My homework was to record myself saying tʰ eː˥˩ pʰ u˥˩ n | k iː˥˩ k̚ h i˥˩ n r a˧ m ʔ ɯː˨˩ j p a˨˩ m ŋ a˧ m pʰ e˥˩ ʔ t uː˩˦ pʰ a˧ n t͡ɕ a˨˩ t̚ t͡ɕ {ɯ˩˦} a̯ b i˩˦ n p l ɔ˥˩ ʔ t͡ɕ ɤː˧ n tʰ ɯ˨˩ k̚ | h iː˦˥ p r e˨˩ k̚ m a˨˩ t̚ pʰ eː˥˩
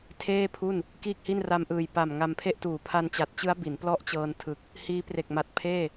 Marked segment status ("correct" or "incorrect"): incorrect